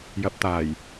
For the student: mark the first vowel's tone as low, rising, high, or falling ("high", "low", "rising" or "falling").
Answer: rising